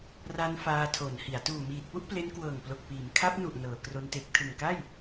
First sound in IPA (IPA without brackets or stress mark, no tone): r